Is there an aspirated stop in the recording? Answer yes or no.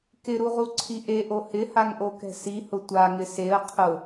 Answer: yes